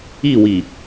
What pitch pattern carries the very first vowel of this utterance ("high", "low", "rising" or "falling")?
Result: falling